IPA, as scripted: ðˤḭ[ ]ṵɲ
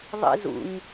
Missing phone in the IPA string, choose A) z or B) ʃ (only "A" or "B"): A